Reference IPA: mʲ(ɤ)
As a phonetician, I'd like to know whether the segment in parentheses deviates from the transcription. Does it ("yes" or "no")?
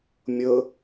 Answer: no